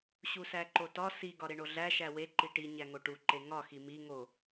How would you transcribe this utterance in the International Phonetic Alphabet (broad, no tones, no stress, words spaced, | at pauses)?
ɕusæǃotɒ si ɡɒɾeɳoɮæ ʃæwe ǃiʈi ɲæŋoʈu ǃeŋɒ ximi ŋo